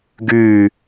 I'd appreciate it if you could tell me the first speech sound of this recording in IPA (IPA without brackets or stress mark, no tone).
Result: ɡ